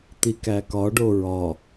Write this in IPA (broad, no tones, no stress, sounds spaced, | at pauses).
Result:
t̪ i k æ k ɒ ɖ o ɹ ɒ